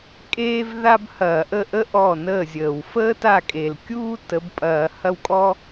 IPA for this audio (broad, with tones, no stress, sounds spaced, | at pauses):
kʼ eː˥ v ð a˥ b h ɐː˧˩˧ ʔ ə˥˩ ʔ ə˥ ʔ ɔ˥˩ n əː˥˩ zʲ əː˨˩ w f əː˥ t a˥˩ kʼ e˨˩ l kʲ uː˥ t ə˨˥ b pʼ ɐː˧˩˧ h ɐ˥˩ w kʼ ɔ˥